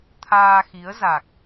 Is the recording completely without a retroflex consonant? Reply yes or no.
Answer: yes